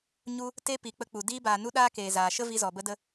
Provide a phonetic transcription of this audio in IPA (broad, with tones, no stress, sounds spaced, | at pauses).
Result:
ɲ u˦ | t e˦ p i˨ k͡p ə˧ k͡p u˨ d iː˧ b aː˨ n u˦ ɗ aː˦ k eː˨ z aː˨ ʃ ə˦ v i˧ z ɔ˨ b ə˧ d ə˧